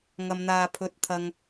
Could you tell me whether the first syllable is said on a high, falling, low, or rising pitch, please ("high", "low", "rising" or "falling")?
high